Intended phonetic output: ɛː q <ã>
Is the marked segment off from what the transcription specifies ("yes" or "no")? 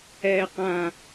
no